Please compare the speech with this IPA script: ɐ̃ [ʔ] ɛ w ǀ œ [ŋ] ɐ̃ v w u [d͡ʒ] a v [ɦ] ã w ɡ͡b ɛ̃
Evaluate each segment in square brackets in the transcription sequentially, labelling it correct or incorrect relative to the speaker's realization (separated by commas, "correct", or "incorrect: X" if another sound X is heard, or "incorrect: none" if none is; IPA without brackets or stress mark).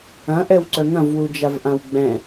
correct, correct, correct, incorrect: ʔ